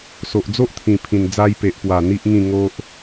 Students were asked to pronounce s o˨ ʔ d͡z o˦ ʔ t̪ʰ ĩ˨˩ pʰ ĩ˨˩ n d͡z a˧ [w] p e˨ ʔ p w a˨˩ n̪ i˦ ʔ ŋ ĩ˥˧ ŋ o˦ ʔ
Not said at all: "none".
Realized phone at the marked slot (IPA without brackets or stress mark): j